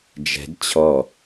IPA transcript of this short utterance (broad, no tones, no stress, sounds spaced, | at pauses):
d͡ʒ ɛ̤ d t͡ɕʰ ɔ